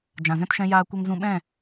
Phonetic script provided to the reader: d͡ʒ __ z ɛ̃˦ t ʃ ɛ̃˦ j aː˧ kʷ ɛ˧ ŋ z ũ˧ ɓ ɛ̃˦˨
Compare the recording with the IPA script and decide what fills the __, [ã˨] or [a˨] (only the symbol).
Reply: ã˨